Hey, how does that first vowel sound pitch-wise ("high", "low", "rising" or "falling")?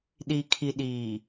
low